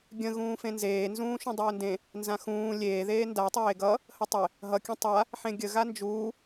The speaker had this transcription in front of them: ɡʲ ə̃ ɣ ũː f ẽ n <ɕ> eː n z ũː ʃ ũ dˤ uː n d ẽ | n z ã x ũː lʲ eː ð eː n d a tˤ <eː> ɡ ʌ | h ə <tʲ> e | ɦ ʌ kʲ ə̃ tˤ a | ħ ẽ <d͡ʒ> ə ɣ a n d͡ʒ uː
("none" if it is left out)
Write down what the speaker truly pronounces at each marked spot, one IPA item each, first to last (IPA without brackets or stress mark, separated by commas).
z, eː, tˤ, ɡʲ